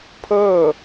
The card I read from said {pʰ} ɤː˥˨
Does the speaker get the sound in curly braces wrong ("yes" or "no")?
no